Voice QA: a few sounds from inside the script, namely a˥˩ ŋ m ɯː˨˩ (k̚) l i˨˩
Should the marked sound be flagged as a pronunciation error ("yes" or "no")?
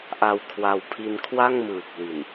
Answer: no